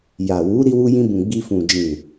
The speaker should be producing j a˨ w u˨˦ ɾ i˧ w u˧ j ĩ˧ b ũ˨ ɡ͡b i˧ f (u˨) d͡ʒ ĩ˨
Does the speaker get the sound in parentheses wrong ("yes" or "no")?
yes